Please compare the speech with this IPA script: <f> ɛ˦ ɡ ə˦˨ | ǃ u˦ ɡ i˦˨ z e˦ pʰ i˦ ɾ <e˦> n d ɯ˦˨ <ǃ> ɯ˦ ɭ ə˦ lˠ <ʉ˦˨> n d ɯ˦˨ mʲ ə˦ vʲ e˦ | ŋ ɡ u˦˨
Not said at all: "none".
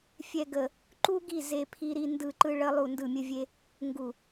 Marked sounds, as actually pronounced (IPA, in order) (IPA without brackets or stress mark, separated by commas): fʲ, i˦, ǃ, u˦˨